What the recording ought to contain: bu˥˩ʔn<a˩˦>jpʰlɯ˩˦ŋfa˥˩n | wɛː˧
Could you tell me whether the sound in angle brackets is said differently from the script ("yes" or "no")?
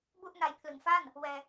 yes